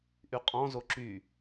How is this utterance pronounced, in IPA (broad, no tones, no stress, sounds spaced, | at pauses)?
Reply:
ʔ y qʼ ɔ̃ z o ǁ y